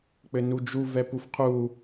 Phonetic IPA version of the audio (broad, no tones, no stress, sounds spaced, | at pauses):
k͡p ɘ n u d͡ʒ u v ɛ p u f qʰ u